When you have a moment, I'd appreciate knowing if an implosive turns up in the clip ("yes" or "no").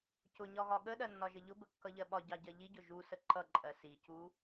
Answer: yes